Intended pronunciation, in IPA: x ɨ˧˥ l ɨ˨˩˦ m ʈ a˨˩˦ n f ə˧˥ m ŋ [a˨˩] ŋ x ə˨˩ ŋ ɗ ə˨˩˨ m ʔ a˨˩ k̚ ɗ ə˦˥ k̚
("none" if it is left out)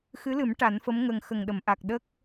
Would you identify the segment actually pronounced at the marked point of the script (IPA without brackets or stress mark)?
ə˨˩